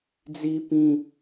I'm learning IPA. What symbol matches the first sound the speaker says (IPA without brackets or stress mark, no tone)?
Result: d͡z